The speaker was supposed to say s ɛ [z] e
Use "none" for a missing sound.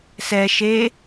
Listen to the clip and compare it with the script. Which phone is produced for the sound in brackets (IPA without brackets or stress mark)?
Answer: ʃ